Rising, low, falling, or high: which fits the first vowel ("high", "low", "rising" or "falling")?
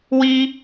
high